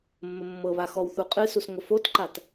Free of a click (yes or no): no